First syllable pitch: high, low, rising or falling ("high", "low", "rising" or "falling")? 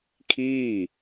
falling